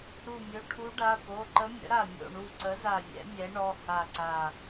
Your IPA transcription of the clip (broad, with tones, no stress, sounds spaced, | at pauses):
ɾ u˧˩ mʲ ɵ˩˧˩ ʈʰ u˧˥ ɖ a˩˧˩ p o˩˧˩ ǃ ə˧˥ mʲ ə̰˩˥ ɾ a˧˩ mʲ o̰˧˩ ɳ u˧˩ ǀ ə˩˥ z a˧˩ vʲ ɛ̰˩˥ mʲ ɛ˩˥ ɳ ɔ˩˧˩ h a˧˩ ǀ a˧˩